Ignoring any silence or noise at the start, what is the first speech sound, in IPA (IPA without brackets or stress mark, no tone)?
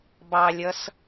b